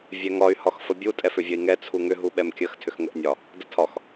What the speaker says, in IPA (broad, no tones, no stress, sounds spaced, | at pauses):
vʲ ɛ ŋ ɒ y̯ h ɒ x f ə bʲ u tʼ ɛ f ʏ vʲ ə i̯ ŋ ɛ t͡sʰ u ŋ ʏ ɦ u ɓ ɛ m kʲ ə x tʰ ʏ x ŋ ə ʔ nʲ ɒ | d ə tʰ ɒ x